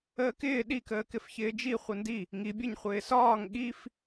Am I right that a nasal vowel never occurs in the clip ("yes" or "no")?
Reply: yes